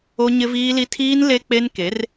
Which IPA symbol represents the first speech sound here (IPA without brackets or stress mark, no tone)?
o